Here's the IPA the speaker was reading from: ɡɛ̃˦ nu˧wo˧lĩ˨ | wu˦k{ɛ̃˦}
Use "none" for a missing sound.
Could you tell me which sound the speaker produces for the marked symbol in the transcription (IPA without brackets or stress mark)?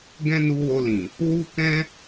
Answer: ɛ̃˦